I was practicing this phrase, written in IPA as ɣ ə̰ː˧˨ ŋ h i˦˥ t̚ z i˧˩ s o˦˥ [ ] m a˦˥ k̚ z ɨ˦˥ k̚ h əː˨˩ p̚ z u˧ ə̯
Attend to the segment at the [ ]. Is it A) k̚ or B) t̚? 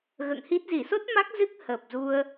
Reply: B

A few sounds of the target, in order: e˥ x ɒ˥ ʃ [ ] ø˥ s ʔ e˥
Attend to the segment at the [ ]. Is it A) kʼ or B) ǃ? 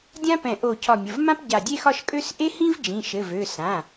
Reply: A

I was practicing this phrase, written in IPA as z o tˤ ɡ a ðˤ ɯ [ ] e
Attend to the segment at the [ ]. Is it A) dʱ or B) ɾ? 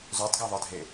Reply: A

